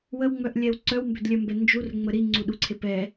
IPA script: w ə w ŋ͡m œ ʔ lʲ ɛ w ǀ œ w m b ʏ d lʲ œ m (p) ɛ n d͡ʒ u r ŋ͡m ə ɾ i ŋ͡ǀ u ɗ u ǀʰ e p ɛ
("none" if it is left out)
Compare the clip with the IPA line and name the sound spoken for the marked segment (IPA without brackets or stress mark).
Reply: b